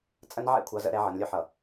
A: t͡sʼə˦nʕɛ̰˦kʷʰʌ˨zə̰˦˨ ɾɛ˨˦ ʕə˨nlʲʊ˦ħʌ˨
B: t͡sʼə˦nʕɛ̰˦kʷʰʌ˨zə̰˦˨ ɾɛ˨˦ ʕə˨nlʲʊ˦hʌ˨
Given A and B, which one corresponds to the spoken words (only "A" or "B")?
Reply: A